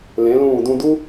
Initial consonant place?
alveolar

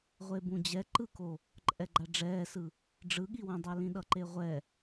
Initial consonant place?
uvular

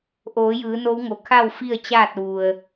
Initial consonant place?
glottal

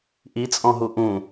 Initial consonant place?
glottal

